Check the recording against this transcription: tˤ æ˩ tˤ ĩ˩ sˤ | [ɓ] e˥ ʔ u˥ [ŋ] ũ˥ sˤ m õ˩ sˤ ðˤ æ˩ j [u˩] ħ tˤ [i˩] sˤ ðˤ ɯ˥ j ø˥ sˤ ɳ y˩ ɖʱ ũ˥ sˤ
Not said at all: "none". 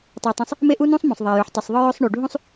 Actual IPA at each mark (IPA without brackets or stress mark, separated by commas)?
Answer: m, n, y˩, y˩